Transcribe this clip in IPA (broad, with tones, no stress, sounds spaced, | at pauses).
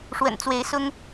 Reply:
ʂ w ə̰˨˩ n t͡s w e˨˦ ɪ̯ s ʊ˦ ŋ